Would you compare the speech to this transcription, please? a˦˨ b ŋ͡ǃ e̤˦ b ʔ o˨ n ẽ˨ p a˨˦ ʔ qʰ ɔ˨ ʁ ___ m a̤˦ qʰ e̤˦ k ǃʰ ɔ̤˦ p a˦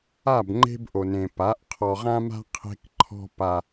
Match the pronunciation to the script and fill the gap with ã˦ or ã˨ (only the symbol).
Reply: ã˦